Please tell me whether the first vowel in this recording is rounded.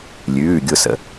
yes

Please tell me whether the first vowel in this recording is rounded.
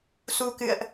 yes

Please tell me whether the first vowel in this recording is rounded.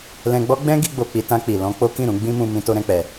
no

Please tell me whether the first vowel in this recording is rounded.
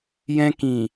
no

